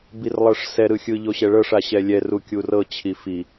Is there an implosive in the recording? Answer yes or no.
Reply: no